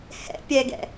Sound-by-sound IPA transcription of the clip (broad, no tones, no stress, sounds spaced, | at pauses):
h ɛ̰ pʲ ɛ ɡ ɛ̰